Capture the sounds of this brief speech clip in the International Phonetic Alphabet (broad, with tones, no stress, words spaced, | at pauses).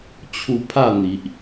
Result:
t͡ɕʰu˧pʰa˥˧n̪i˨ʔ